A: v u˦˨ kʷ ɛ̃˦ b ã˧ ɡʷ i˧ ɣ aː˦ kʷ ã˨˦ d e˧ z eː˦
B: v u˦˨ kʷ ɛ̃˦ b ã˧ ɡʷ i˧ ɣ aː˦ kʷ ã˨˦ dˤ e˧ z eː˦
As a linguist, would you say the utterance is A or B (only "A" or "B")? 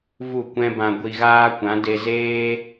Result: A